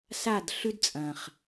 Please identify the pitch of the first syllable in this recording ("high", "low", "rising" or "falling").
falling